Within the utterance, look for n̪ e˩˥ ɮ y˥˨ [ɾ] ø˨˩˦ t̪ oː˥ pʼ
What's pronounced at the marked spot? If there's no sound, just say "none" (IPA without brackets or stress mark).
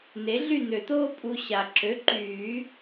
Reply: n̪